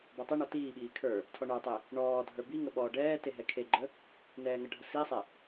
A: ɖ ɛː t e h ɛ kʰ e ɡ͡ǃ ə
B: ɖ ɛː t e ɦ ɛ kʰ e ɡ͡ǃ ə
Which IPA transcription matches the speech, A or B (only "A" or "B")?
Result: B